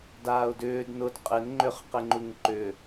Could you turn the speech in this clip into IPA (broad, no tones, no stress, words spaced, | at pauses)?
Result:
daːʊ̯dʏːd nʊd qʼɪn ŋ͡ǃʏχqɪ ŋ͡ǃuŋǃʏ